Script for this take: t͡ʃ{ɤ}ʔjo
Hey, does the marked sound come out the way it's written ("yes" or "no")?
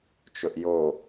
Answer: no